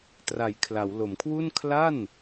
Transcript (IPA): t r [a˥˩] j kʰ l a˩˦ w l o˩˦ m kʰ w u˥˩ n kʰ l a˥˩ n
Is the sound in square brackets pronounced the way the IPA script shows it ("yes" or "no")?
no